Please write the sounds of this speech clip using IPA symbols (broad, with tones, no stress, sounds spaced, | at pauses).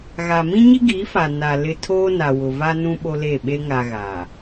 ɣ a˨ m ĩ˦ ɲ i˦ ɡ iː˨˦ f a˨ n a˨ l ɪ˦ tʰ oː˦ n a˨ w ʊ˨ v a˦ n ũ˦ ɓ o˦ l e˦˨ ɓ e˦ ŋ a˨ ɣ a˨